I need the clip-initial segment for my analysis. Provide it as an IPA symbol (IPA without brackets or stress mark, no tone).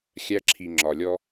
xʲ